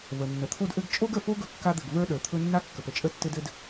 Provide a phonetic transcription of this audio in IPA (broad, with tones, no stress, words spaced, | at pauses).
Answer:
və˩nːə˩t̪ʰo˥dʔɘ˥ɡ t͡ʃʼo˥ɡə˩fo˥ ɡɵ˥kːa˥d̪ɘ˩ɡ və˞˥ɗə˞˩ t̪ʰɵ˥ nːa˥kːə˩p ə˩t͡ʃʼə˥tːɘ˥d ɘ˥d